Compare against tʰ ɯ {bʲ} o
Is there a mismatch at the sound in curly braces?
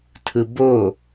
yes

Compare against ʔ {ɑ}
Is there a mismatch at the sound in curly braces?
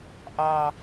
no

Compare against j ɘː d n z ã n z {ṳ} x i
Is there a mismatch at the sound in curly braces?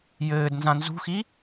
no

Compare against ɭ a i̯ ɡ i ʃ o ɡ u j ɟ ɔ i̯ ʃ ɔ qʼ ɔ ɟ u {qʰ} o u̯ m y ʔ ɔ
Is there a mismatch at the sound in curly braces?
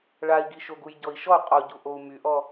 yes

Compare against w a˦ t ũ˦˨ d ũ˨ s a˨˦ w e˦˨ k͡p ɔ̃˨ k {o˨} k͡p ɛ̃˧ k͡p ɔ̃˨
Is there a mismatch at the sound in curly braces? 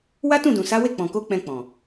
yes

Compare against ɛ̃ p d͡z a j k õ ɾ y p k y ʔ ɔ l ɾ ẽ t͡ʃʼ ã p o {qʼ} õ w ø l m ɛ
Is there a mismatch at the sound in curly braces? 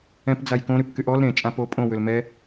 yes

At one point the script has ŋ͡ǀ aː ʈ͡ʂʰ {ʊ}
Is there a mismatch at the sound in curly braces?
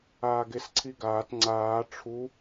yes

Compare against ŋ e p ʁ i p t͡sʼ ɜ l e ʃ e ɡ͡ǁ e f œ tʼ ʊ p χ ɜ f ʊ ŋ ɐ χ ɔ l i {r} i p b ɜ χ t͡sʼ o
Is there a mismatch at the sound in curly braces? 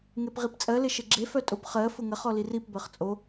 no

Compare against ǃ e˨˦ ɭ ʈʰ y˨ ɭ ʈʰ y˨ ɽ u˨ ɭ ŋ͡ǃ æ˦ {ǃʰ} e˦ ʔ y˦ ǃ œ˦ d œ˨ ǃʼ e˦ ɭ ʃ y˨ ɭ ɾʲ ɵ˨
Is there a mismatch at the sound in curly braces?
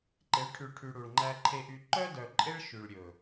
no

